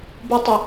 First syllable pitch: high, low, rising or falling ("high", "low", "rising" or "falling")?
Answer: high